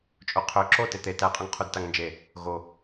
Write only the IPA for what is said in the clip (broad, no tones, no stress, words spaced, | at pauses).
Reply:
t͡ʃʼoqʰø ǁo tet̪e tæqʼuŋ qʰudtaŋnd͡ʒe | ɣo